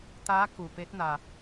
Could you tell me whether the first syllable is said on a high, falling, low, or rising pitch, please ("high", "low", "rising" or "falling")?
rising